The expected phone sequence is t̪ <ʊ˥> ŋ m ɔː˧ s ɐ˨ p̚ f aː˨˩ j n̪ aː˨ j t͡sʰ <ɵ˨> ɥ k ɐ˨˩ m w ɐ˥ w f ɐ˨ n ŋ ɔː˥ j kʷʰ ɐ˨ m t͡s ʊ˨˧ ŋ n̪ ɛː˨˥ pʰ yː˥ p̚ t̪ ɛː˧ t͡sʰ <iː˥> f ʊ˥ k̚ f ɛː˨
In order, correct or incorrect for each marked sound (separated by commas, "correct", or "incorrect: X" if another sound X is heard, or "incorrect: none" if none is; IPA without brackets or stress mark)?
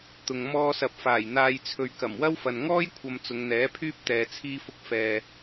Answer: incorrect: ʊ˨, correct, correct